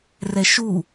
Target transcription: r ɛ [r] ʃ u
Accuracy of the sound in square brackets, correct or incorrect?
incorrect